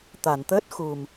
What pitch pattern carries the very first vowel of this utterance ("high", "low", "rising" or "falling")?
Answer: low